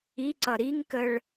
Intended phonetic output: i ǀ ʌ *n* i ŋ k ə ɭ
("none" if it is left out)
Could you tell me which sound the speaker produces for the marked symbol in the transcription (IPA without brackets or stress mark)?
ɾ